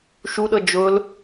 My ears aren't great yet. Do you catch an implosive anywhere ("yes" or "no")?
yes